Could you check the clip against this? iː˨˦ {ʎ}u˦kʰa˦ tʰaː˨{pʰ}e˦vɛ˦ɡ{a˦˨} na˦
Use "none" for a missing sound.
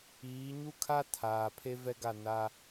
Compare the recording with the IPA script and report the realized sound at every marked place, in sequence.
ɲ, pʰ, a˦˨

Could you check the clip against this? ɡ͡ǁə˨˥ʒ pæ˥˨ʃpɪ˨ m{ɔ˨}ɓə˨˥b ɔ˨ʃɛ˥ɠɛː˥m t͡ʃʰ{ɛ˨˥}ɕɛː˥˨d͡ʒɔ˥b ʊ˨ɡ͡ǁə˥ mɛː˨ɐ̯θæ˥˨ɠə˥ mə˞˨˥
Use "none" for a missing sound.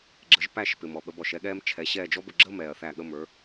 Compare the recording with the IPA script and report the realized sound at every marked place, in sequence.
ɔ˨, ɛ˨˥

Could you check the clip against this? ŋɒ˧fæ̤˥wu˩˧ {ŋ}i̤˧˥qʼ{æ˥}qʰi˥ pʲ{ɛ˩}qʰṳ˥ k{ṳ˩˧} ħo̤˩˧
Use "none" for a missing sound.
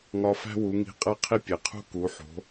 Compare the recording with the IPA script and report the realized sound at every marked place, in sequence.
ŋ, æ˥, e˩, u˩˧

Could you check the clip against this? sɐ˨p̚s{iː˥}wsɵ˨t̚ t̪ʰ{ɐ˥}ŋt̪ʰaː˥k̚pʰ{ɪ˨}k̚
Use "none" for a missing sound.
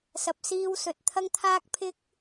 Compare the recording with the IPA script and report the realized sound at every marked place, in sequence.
iː˧, ɐ˥, ɪ˥

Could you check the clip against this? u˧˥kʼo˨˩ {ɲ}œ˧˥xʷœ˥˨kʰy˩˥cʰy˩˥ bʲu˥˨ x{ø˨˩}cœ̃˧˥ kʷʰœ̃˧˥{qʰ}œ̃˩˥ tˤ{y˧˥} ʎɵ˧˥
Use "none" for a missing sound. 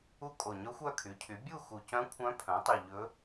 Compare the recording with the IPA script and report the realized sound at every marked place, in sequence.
ɲ, u˨˩, pʰ, y˨˩

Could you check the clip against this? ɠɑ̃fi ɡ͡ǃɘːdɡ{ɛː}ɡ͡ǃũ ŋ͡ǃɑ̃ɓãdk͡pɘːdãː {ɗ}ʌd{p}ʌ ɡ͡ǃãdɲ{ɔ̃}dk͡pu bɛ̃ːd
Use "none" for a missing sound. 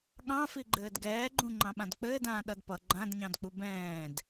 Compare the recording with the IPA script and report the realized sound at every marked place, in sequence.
ɛː, ɗ, p, ɑ̃

